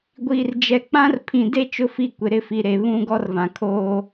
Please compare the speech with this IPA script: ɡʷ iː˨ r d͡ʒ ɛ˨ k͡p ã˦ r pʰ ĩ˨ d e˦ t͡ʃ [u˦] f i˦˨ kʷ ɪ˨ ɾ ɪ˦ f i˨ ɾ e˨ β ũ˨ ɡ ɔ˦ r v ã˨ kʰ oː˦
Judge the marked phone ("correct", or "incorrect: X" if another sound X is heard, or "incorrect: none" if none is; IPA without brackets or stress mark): incorrect: ʊ˦